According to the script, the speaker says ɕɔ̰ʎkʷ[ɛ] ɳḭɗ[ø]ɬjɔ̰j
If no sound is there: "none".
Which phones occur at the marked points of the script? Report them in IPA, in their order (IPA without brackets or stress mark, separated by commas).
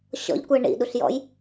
ɛ, u